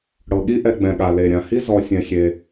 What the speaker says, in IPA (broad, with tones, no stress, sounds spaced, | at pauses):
ɽ ɤ˩ ɠ i˦ ʔ ɛ˨ ɡ͡b ɛ̃˩ ɠ a˩ l e˩ ɾʲ ã˩ h i˥ z ɔ˨ sʲ ɛ̃˩ xʲ e˩